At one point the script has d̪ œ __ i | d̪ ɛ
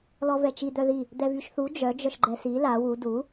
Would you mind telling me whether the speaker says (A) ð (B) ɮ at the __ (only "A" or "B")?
A